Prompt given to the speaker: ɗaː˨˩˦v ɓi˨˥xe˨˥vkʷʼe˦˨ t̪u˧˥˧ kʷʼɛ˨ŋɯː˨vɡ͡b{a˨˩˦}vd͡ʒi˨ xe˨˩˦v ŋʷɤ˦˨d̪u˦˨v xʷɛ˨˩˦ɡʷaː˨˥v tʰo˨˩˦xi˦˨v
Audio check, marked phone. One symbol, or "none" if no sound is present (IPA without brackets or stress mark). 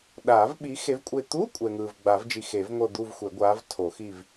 a˨˩˦